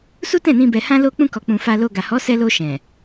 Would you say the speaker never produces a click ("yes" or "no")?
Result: yes